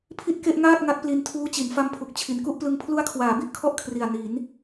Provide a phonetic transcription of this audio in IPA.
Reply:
pʰi˥˩t̚ke˥˩ʔŋaː˥˩t̚ ŋa˦˥t̚pli˧ntʰuː˦˥t͡ɕi˩˦n fa˦˥mpʰu˨˩k̚ t͡ɕʰi˩˦nku˥˩ʔplɯ˧ŋ pʰlu˦˥a̯kʰwaː˩˦bi˥˩ʔkʰɔ˦˥ʔ kʰri˨˩a̯ni˩˦n

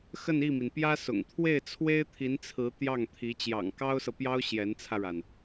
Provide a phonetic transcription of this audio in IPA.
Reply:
xə˥˧ni˥˩mi˩n pjä˥sʊ̰˨˩ŋ t̪ʰwe˥˩ɪ̯t͡sʰwe˥ɪ̯t̪ʰi˧˥nt͡sʰɹ̩˧˥ t̪jɑ˥˩ŋt̪ʰi˧˥ t͡ɕjɑ̰˨˩ŋkɑ˥ʊ̯sɤ˨pjɑ˥ʊ̯ ɕjɛ˧˥nt͡sʰä˧ɻa˩n

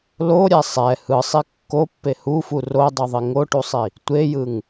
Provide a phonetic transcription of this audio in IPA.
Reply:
loɾʲɛ sˤɛ hɯsˤi kːopːe hufu rodˤuðˤi ŋoʈusˤi | tʷejɯŋ

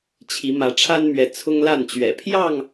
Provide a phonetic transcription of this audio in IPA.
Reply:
t͡ɕʰi˨˦ mä˨˦ʈ͡ʂʰa˦nmɥɛ˨˦ t͡sʰʊ˦ŋ la˥˨nt͡ɕɥɛ̰˨˩ pʰjɑ˥˨ŋ

